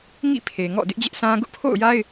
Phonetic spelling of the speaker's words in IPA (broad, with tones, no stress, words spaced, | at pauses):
ŋḭ˦˨ pʰe˨ŋɔ̰˦˨ dɪ˦ʔd͡ʑɪ˦ʔsʰã˦ ɡʊ˦ʔpʰo̰˦˨ʊ̯ja˦ɪ̯